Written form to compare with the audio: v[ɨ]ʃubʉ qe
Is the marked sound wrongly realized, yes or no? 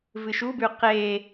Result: no